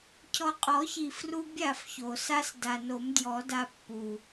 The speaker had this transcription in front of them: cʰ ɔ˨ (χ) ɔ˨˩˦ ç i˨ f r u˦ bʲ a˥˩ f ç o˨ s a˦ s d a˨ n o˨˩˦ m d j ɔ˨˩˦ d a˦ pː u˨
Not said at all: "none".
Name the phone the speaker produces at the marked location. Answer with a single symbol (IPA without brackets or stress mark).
qʼ